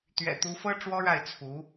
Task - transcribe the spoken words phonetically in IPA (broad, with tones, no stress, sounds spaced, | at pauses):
t̪ ɥ ɛ̰˨˩ t̪ u˧˥ f ɤ˥ ʈ͡ʂ w ɔ˥ ɻ a˥˩ ɪ̯ t͡sʰ u˧˥